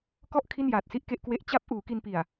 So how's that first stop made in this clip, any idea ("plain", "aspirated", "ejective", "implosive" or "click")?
plain